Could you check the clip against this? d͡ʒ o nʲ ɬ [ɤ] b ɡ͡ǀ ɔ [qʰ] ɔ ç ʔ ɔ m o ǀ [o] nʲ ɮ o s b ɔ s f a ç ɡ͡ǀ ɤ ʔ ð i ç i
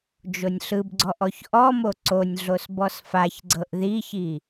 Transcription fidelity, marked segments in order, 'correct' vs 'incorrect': incorrect, incorrect, correct

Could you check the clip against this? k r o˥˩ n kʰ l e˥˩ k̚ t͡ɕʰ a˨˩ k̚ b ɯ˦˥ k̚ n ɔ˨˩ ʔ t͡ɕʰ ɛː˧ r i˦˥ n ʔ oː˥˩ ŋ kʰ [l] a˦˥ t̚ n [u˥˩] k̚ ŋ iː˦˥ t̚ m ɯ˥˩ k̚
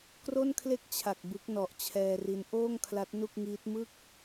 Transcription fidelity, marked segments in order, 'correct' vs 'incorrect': correct, correct

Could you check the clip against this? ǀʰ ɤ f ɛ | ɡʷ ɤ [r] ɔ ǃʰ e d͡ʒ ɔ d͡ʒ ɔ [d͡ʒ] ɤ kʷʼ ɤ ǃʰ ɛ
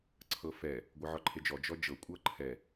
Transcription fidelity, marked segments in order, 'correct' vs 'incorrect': incorrect, correct

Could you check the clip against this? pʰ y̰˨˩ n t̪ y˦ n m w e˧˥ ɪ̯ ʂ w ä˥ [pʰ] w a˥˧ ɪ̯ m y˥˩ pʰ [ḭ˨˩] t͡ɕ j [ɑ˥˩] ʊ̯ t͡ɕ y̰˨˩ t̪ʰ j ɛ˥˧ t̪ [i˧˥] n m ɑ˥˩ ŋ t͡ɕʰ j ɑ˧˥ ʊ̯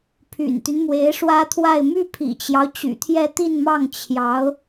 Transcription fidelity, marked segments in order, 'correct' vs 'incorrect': incorrect, correct, incorrect, incorrect

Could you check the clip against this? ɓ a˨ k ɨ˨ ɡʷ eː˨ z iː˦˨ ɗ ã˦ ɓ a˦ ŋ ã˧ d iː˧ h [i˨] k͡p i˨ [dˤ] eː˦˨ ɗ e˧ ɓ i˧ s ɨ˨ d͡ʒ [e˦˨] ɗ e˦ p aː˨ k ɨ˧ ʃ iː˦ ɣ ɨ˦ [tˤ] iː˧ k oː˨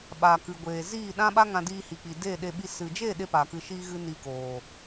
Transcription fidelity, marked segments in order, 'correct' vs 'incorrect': correct, incorrect, correct, incorrect

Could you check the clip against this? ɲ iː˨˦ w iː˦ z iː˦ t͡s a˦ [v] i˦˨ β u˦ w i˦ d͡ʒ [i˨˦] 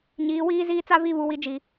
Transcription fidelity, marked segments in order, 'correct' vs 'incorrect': correct, correct

